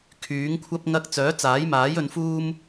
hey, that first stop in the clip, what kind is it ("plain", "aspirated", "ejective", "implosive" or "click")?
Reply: aspirated